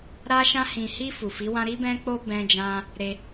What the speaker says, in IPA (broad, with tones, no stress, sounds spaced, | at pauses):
ɾ a˧ ʃ ã˧ h ĩ˨ h i˧ f u˨ f i˨˦ w ã˦ ɾ i˧ b ɛ̃˧ k͡p o˧ b ɛ̃˧ d͡ʒ ã˧ | ɾ e˧